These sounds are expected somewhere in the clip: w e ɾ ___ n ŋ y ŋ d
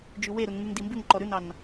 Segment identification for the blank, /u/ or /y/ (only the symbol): u